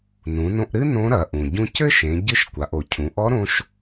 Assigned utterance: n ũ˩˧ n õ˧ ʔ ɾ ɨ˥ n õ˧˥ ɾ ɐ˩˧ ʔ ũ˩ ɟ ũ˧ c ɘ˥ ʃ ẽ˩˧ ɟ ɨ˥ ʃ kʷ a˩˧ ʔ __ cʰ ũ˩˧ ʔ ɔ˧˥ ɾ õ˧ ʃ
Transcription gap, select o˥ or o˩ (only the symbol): o˩